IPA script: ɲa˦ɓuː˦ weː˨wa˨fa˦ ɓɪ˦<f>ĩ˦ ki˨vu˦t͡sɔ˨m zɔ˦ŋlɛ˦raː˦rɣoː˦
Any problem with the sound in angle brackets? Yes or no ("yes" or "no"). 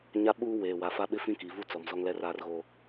no